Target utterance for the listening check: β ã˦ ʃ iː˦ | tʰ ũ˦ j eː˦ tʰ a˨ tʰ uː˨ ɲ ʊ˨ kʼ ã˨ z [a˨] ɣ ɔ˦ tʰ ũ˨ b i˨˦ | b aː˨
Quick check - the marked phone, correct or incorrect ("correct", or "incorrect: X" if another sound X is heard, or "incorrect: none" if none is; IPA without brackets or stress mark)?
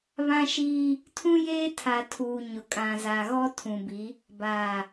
correct